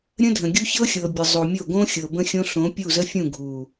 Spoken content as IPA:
ɾʲ ə̃˦ dʱ ə̃˨ ɡʲ u˦ ç ɤ˦ xʲ ɤ˨ bʲ ə˨ zˤ o˨ mʲ o˦˨ ɡ õ˦ xʲ ɤ˨ b ə̃˦ xʲ õ˦ ɬ õ˨˦ pʲ u˦˨ z ə˦ fʲ ũ˦˨ ɡʱ u˨

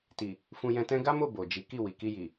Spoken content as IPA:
t i˨ | f ũ˧ j ɛ̃˧ t ɛ̃˦ ɡ a˦ m o˦˨ b o˨ d͡ʒ i˨˦ k i˦˨ w i˨ k i˧ j i˨

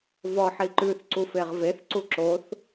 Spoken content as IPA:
v ɔ ħ i ǃ ʉ θ ǀ u f e ʁ v e θ ǀ u ǁ o θ

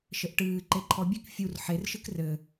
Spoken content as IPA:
ʃ ɘ ʔ ʈ ɨː ǃ e ǃʰ ɔ bʲ ɨ k fʲ u r ħ e r ʃ ɨ k r ɘ

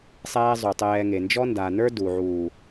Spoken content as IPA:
sˤ ɛː˦ zˤ u˨ tˤ ɛː˧ ŋ e˨ n d͡ʒ ɔ˦ n d a˨ n ə˞˦ d u˨ ʕ uː˨

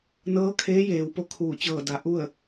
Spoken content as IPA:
n ɤː˧˥ kʰ eː˧˥ j eː˩˧ w p o˧ kʰ uː˧˩ t͡ɕ ɤː˧˩ d a˩˧ ʔ u˥˨ ə̯

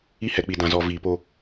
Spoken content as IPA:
i˦ h ɛ˨ k͡p i˨ d ã˨ z ɔ˨ v iː˨ p o˦

